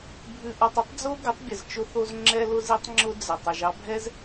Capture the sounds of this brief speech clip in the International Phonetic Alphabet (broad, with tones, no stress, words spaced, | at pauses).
bʱʉ˧ʔɔ˧tˤɘ˦tˤ d͡zo˦ɡə˨˦tˤbʲə˨z t͡ʃʊ˧θo˧z ŋ͡ǁɛ˧lʊ˧z i˦tˤŋ͡ǁʊ˦ d͡zə˨ tˤɛ˨ʒɑ˦bʱɛ˦z